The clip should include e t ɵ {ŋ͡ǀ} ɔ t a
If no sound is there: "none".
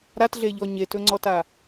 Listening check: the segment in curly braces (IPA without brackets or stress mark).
ŋ͡ǀ